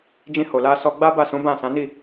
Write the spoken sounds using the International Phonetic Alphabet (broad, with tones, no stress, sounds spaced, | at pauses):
d͡ʒ ĩ˧ h o˨ l a˧ s ɔ˧ ɡ͡b a˦ b a˦˨ s ũ˨˦ b ã˦˨ s ã˨˦ n i˦˨